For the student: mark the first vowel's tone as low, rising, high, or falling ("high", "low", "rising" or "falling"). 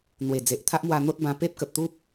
low